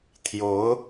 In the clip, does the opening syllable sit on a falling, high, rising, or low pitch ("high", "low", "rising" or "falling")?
rising